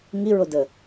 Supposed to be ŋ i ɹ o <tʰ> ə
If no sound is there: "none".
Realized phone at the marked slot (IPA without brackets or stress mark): d